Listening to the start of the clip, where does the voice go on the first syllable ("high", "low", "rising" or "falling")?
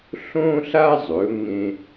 high